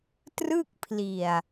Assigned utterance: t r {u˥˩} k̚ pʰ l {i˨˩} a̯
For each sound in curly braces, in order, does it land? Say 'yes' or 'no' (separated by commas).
no, yes